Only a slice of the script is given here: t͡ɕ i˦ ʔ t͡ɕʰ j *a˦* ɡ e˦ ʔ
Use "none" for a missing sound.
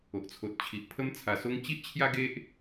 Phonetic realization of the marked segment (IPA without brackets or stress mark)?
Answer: a˦